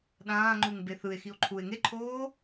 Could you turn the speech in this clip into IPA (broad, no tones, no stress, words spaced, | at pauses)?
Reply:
ɗãːŋ͡ǃuŋ beθɯe̯ xio̯ǃʰue̯ ŋeǃʰoː